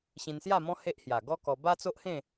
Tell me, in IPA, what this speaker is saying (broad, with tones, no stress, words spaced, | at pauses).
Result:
ɕĩ˧nsja˥˧mɔ̃˦ he˦ʔhja˨˩ ɡɔ˦kɔ˧ ba˦t͡so˦ʔhẽ˥˧